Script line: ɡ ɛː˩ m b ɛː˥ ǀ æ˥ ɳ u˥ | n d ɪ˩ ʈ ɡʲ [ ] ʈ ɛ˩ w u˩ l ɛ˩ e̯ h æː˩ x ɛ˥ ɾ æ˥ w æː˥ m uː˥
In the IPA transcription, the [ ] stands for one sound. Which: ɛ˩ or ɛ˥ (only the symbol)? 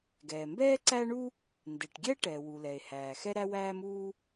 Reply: ɛ˥